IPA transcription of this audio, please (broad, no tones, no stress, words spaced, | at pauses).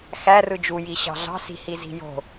xærɯ d͡ʒuji ɕɑ̤ɮɑ̤si̤ hizi̤jo̤